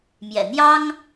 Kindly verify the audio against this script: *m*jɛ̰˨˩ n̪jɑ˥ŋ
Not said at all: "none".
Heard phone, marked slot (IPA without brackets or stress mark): m